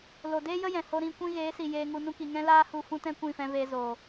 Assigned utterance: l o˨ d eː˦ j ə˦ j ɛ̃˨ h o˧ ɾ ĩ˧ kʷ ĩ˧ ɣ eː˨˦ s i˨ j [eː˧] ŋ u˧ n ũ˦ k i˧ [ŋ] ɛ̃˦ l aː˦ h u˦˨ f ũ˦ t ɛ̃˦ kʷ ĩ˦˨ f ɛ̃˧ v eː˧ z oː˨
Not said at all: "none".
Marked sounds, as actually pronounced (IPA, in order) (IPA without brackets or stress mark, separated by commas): eː˧, ŋ